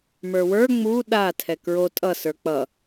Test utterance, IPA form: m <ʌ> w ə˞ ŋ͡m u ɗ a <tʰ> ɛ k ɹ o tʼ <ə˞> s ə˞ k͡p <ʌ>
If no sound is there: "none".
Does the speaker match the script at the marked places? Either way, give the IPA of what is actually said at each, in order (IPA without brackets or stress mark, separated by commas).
ə˞, tʰ, ʌ, ʌ